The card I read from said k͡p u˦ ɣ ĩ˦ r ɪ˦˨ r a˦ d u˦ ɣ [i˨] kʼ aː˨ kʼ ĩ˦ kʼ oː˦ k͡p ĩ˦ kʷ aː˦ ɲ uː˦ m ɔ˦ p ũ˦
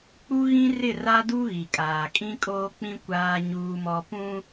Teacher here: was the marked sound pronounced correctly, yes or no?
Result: yes